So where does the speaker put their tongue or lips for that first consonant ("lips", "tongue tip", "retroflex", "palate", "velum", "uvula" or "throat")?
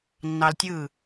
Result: tongue tip